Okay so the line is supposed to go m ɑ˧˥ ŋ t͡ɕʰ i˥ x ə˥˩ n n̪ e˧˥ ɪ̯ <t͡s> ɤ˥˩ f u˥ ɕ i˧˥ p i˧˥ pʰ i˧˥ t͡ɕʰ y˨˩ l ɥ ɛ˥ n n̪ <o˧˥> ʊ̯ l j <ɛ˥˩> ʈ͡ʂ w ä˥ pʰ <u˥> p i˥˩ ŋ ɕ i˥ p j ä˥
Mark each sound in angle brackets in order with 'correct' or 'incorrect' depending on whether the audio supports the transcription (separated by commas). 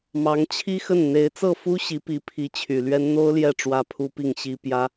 correct, incorrect, correct, correct